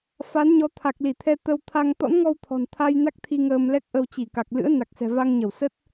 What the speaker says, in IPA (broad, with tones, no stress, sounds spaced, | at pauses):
f a˨˦ n ɲ ɔ˨˦ t̪ʰ a˨˩ k̚ l i˧˩ t̪ʰ ɛ˧ t̪ ə˧ w t̪ʰ a˧ ŋ t̪ ɔ̰˧˥ n ŋ ɔ˧ w t̪ʰ ɔ̤˨˩ n t̪ʰ a˧ j n a˦˥ k̚ t̪ʰ i˧ ŋ əː˧ m l ɛ˦˥ k̚ ʔ ə˧ w t͡ɕ i˧˩ k a˨˩ k̚ l ɨ̰˧˥ ə̯ n a˨˩ k̚ s ɛ̤˨˩ v a˧ ŋ ɲ ə˧˩ w s ə˦˥ t̚